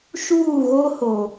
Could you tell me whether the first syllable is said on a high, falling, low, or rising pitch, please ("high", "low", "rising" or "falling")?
falling